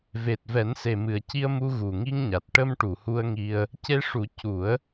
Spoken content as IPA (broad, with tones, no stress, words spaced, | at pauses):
ve˨˩t̚vɛ˨˩˦nse˨˩ mɨ˨˩ə̯ci˧ə̯mu˧ ɣu˨˩ŋi˧ŋɲa˨˩t̚ ʈə˧mʈu˨˩˨hu˧ə̯ŋi˧ə̯ | ce˧ʂu˨˩˦ cu˨˩˦ə̯